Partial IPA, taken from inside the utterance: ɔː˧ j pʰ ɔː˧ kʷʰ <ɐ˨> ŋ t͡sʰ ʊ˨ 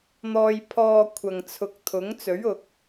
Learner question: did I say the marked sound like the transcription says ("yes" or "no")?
yes